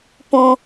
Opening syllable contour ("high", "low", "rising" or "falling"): high